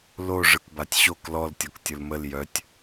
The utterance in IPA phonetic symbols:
lo ʐɯkbatʲɕok lɔl tʲɔktʲɯlməl jœtʲ

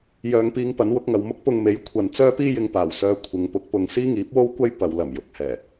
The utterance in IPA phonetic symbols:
jœː˨ŋpiː˧ŋ pɐ˨˥nwʊ˨˥k̚ŋɐ˨w mʊ˥k̚pʊ˧ŋme˨˥j kʷʰɐ˧n t͡sœː˥piː˥jɪ˧ŋ paː˨˩wsœː˧ kʷʰɪ˨˧ŋ pʊ˨˥k̚pʊ˨ŋ siː˥ŋiː˨˥p̚wo˥w kʷɐ˥j pɐ˨˧w lɐ˨˩mjʊ˨˥k̚ hɛː˨˩

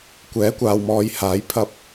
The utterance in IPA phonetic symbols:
kʷɛː˨˥kʷaː˨wmɔː˨˧jhaː˨˥j pʰɐ˧p̚

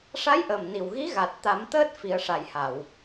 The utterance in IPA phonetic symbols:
ʂa˧˥jʔəː˨˩mni˨˩wɣi˧˥ ɣa˨˩t̚t̪a˨˩˦mt̪əː˦˥t̚ fi˨˩˦ə̯ʂa˨˩jha˨˩˨w

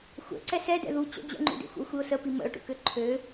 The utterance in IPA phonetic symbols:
xʷɛ̰ ǀɛsɛdɛ̰ ðu t͡ɕə̰ d͡ʑə̰ŋ͡ǃṵdḛ xʷə̰ʊ̯xʷiʊ̯səpi mə̰ʊ̯ʈṵkø ǃʰø

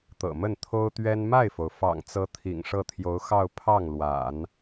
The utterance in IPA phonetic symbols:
t̪ɤ̰˨˩mə˥˩nt̪ʰo˥ʊ̯t̪ɥɛ˥n ma˥˩ɪ̯fo˩ʊ̯fɑ̰˨˩ŋt͡sɤ˧˥ t̪ʰḭ˨˩ŋʂɤ˥˩t̪ʰjo˧˥ʊ̯ xɑ˥˧ʊ̯ pʰɑ˥˩ŋlwa̰˨˩˦n

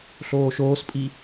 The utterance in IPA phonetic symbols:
ɬoːʃoːspʼi

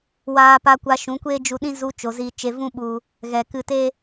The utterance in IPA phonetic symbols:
waː˧pa˧kʷa˧ ʃũ˨˦kʷeː˦d͡ʒu˧ɗĩ˦ zu˧ t͡ʃo˨ziː˧t͡ʃe˧vũ˦ ɓu˧ | ɣɛ˨kɨ˧te˦

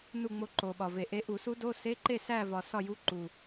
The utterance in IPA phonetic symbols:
nu˥˨ŋ͡mo˧˥ ǃo˨˩ɓɒ˨˩ve˨˩ʔe˧˥ ʔu˨˩˦su˧˥do˧˥˧ se˧˥˧ǃe˥˨ sæ˥˨vɒ˨˩ sɒ˥˨ju˧˥˧ ǃu˨˩

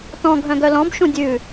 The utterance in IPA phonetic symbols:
tɔ̃ ɡʱœ̃ɡœlɔ̃b ʃũdʲʉ

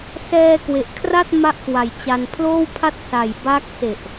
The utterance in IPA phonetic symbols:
sɛː˧ kwe˨˩ʔkʰra˥˩t̚ ma˥˩ʔkwa˨˩jt͡ɕa˧n pʰloː˥˩wpʰa˥˩t̚ sa˨˩jba˦˥k̚se˨˩ʔ

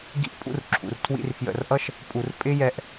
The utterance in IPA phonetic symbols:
ɡḭ˧ʔpʼṵ˧rǁʰṵ˨rtʰwḭ˧r fjə̰˧rʔʌ˦ʃ | pʼu˨rpʼɪ˦jɛ˧ʔ

